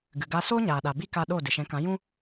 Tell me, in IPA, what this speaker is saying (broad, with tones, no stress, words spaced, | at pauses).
ɡɨ˨ɡa˧ soː˦ɲaː˨ɗa˨ bi˧ ka˧ɗo˦˨ dɨ˨ʃɛ̃˨˦kã˨˦ jũ˦